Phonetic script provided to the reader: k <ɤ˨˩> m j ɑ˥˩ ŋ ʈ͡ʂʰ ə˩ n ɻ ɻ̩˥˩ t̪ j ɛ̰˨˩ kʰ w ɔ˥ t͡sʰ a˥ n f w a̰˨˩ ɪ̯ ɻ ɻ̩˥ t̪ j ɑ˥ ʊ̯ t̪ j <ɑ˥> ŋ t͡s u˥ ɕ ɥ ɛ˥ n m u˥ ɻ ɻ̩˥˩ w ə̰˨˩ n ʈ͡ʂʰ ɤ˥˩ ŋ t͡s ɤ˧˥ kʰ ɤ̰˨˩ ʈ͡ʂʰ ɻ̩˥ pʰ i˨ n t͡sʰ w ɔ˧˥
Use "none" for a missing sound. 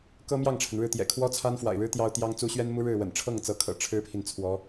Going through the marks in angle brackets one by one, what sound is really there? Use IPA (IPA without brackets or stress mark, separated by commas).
ɤ˥, ɑ˥